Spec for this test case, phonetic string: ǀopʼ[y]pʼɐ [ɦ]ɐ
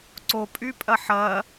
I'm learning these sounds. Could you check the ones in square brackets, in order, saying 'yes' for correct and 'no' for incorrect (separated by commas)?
yes, no